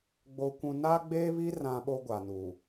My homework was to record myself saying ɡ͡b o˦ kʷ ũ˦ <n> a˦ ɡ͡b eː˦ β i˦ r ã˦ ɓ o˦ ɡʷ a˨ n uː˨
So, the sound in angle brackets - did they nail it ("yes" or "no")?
yes